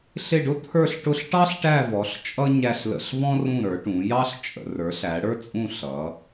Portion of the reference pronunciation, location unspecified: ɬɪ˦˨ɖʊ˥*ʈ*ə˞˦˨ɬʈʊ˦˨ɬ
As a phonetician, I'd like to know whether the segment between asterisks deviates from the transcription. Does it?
yes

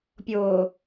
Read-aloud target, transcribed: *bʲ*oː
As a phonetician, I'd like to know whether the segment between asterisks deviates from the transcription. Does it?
yes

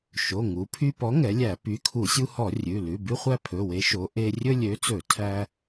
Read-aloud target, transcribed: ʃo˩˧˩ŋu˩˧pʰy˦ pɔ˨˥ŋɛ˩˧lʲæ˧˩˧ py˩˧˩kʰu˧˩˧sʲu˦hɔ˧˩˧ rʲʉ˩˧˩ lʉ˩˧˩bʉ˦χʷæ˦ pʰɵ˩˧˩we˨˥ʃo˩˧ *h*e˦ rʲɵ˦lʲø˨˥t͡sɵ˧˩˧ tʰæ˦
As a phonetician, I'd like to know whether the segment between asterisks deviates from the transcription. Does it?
yes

